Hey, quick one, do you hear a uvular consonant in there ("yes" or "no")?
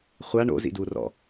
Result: yes